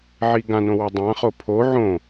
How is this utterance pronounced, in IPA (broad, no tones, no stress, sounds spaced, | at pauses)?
ʕ i ɡ ã n õ w o dˤ ã χ o pʰ o ʕ õ